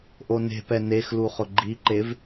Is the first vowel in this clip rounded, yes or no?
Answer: yes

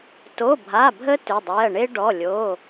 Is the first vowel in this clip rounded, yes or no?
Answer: yes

